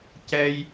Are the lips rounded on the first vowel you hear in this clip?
no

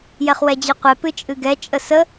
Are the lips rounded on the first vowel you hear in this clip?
no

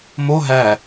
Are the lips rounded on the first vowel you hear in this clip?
yes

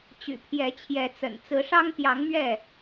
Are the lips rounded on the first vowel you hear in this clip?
yes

